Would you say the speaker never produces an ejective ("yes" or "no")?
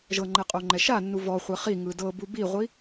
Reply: no